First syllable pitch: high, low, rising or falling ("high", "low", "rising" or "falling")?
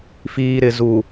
low